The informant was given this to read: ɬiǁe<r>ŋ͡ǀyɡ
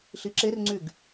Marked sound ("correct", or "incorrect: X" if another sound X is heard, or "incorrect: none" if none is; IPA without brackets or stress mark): correct